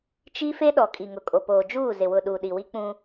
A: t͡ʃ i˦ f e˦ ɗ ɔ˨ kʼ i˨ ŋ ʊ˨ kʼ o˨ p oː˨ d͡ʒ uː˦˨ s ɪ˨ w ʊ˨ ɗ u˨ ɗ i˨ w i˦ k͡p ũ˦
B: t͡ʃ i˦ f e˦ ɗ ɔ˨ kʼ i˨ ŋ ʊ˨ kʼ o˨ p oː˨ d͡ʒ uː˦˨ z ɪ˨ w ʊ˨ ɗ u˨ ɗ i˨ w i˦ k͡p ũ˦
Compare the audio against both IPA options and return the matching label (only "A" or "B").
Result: B